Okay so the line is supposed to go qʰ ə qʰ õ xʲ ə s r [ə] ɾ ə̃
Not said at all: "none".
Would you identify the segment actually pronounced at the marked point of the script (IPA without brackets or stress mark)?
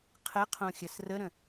ə